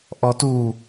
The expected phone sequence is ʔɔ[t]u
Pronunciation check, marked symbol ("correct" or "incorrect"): correct